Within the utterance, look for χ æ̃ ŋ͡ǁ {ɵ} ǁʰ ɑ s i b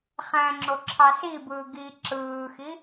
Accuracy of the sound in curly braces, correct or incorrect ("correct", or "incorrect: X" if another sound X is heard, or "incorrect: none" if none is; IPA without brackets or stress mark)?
incorrect: o